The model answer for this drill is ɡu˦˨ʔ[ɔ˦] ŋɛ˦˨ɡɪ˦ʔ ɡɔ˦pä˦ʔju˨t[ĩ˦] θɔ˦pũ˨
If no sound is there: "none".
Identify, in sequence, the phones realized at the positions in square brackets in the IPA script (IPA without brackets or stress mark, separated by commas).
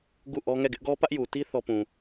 ɔ˦, i˦